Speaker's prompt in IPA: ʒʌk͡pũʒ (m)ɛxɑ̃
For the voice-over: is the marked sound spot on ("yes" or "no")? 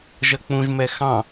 yes